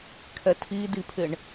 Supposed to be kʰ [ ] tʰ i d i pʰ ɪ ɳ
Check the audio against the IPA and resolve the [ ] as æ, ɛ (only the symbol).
ɛ